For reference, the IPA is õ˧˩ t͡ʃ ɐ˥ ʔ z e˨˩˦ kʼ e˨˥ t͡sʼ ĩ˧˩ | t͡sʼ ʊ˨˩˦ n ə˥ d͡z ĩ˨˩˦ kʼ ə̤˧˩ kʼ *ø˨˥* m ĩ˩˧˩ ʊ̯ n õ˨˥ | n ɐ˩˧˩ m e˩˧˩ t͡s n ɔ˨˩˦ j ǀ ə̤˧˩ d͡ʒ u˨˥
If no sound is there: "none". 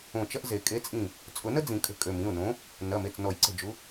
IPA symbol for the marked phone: ø˩˧˩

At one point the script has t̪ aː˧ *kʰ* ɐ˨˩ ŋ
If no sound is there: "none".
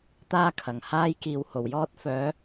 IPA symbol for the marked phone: kʰ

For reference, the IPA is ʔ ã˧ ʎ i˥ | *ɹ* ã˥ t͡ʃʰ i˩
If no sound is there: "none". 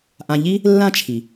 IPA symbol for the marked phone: lː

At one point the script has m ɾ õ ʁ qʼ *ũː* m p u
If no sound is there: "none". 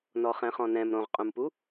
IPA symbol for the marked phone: ũ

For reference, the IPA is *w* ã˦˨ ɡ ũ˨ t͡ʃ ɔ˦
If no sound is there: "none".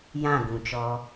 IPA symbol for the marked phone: j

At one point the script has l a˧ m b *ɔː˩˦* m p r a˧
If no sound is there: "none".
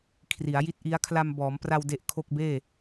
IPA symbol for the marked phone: ɔː˩˦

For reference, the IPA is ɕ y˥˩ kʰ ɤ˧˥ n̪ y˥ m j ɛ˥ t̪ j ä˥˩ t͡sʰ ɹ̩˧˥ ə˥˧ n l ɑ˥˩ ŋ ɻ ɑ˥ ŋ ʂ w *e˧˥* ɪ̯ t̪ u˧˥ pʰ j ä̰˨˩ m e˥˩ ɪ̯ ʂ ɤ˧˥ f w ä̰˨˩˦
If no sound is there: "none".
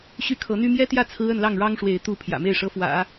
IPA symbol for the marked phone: e˧˥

